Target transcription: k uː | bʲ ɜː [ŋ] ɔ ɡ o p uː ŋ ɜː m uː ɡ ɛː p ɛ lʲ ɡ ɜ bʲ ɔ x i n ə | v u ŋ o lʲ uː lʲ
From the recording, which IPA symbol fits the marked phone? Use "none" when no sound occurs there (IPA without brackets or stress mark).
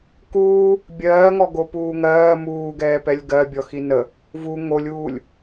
ŋ